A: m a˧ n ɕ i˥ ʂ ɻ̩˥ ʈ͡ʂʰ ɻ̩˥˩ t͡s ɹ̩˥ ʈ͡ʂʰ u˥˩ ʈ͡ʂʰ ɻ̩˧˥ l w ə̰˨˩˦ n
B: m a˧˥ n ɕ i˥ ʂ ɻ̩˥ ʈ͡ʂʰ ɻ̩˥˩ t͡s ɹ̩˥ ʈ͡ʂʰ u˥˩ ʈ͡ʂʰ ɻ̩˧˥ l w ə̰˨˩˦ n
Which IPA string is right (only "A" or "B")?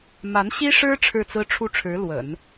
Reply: B